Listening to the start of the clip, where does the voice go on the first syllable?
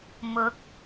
rising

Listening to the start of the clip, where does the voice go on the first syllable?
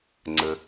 low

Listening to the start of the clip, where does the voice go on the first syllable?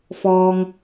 low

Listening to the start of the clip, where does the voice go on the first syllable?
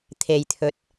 low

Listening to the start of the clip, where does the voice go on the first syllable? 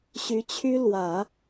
rising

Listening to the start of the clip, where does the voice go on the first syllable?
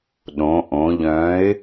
rising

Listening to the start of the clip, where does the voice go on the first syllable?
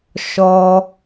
high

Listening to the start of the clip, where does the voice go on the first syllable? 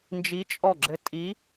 rising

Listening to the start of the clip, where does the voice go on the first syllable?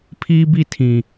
high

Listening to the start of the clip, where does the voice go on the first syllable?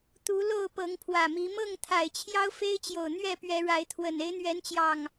rising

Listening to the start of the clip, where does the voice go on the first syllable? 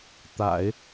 low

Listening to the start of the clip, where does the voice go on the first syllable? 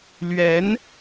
rising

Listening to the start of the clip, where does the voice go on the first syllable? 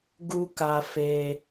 high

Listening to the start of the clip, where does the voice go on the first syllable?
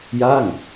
falling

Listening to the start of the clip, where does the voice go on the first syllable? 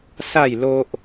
falling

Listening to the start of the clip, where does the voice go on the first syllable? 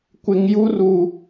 low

